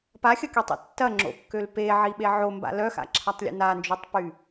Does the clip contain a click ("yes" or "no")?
yes